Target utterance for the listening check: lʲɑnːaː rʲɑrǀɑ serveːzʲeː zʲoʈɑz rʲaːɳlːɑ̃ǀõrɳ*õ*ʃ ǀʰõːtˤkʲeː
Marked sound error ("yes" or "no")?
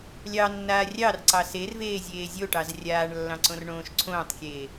yes